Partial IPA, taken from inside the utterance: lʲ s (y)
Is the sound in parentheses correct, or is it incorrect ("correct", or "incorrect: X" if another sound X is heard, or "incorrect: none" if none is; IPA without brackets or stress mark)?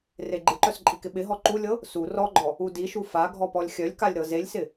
incorrect: ɪ